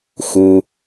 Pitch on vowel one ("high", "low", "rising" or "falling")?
low